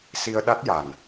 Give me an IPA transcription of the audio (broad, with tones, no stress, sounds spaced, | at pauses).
s i˧ ə̯ ɗ a˦˥ t̚ j a˨˩ n